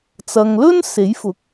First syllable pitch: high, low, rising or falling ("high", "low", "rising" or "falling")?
low